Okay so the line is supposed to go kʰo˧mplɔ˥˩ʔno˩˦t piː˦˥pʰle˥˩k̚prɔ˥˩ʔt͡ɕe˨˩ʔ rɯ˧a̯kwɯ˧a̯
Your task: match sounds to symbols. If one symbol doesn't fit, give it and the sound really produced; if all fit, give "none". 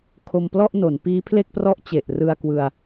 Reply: t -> n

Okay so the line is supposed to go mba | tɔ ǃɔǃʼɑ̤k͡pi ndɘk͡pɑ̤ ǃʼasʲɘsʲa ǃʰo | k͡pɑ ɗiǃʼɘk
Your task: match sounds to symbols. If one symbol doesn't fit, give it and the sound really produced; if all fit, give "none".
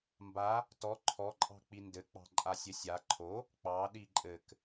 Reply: ǃ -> ǃʰ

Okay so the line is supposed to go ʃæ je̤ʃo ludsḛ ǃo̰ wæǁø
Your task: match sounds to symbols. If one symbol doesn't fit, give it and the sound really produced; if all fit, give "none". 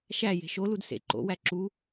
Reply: ø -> u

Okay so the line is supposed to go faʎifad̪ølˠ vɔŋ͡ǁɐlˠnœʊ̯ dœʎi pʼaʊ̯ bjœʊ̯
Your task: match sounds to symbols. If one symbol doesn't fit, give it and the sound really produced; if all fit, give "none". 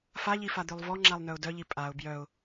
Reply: ɐ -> a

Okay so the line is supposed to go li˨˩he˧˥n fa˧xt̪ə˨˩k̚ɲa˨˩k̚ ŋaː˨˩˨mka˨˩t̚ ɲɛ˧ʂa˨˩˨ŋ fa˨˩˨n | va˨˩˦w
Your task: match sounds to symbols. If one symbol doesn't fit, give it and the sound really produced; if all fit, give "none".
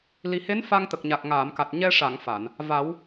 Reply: x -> ŋ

